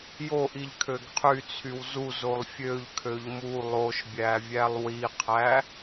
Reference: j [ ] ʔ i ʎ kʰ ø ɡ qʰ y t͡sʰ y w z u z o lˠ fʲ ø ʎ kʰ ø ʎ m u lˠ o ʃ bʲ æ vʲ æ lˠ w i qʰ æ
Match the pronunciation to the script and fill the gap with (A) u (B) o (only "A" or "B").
B